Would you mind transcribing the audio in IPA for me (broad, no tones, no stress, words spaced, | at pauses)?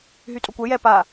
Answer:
ɦytʼokʷɛ jɛ pa